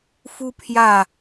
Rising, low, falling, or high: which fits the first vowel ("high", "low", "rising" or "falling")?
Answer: high